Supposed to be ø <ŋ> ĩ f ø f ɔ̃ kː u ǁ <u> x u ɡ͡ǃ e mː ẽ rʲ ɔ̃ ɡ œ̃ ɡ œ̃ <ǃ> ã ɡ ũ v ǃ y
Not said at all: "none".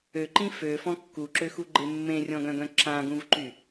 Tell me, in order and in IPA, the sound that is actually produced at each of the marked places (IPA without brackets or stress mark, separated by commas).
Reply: ǃ, ø, ǁ